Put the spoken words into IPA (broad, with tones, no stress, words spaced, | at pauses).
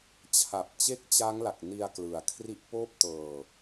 t͡ɕʰa˨˩p̚ t͡ɕe˦˥k̚t͡ɕa˦˥ŋ la˨˩k̚ni˧a̯klɯ˨˩a̯ kʰri˦˥ʔpoː˥˩p̚ tɤː˧